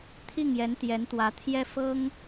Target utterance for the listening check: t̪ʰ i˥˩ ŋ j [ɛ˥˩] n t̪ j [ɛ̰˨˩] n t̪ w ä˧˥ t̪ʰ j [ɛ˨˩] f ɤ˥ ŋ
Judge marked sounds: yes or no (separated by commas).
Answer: no, no, no